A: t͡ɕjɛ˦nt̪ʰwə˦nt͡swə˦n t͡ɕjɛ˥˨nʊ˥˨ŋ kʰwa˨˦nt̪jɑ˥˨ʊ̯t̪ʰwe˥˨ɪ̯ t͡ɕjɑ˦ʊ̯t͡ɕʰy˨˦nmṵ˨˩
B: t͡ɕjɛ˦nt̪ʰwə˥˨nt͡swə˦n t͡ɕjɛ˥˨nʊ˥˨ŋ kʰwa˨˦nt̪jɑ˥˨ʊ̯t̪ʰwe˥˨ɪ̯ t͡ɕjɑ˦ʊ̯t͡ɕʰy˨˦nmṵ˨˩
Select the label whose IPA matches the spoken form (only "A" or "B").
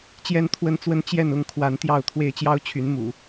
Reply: A